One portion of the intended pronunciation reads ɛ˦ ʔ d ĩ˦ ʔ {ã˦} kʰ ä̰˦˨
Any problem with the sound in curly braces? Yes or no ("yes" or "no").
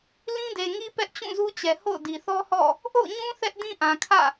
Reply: yes